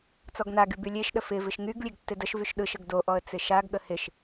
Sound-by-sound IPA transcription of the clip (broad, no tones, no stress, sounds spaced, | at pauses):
t͡s ɔ ɡ n a ɡ y b y lʲ e ʃ ɗ ə f ɪ v ɪ ʃ ŋ y ɡ lʲ e ɡ tː ɪ d ə ʃ v y ʃ ɗ ɯ ʃ ə ɡ d o ʔ ɔ ə̯ t͡s ɪ ʃ a ɡ ɠ ə h ɪ ʃ